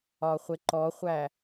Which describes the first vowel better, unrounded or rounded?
rounded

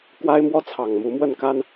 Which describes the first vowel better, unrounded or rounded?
unrounded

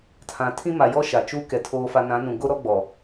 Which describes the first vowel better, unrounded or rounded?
unrounded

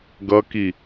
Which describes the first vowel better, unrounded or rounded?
unrounded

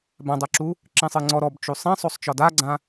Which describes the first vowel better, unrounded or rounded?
unrounded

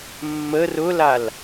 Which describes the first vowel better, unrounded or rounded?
unrounded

